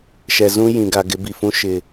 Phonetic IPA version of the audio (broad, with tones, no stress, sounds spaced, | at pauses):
ʃ ɛ˨ z ũ˦ j ĩ˨ ɡ a˨ ɡ ɪ˨˦ b i˨ f ũ˦ ʃ ɪ˨